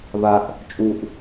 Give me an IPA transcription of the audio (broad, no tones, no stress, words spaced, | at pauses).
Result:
βaʔ | t͡ʃʼuʔ